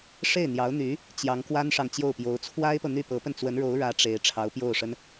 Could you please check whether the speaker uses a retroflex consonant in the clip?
yes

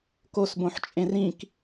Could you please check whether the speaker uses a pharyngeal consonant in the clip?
yes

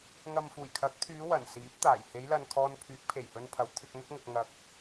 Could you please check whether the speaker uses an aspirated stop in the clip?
yes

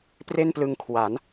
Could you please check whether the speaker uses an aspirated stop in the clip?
yes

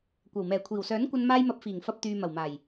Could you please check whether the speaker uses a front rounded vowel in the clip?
yes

